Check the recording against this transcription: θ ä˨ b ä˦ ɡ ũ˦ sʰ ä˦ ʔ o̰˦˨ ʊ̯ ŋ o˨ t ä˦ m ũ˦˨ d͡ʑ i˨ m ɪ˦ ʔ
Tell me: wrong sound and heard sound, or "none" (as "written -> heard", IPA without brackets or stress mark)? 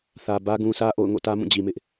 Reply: o˨ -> o̰˦˨